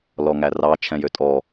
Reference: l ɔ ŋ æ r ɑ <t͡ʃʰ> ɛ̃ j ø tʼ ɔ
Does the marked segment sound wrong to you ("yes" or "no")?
no